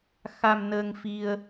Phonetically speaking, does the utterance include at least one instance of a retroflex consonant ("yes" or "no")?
no